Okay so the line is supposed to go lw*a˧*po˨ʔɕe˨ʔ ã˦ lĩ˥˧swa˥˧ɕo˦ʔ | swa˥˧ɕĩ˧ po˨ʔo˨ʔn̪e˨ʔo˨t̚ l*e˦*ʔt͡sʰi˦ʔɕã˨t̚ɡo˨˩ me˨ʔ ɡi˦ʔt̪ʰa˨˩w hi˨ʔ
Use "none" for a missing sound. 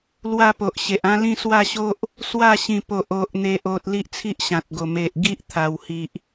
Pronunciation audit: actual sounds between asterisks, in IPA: a˥˧, i˦

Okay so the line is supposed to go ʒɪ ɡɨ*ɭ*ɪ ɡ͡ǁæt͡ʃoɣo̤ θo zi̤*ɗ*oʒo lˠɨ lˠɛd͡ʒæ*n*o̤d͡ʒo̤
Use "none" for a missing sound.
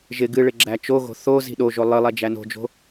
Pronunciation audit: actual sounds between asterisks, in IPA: ɭ, ɗ, n

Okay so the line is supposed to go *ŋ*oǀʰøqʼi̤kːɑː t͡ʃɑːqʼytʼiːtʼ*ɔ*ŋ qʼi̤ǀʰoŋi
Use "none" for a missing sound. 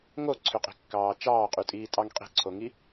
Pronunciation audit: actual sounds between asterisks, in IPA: ŋ, ɑ

